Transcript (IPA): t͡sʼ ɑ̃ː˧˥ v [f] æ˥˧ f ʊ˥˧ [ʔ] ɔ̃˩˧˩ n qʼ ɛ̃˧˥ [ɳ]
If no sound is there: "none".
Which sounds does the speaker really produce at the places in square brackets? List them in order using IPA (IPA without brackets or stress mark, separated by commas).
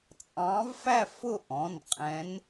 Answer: f, ʔ, n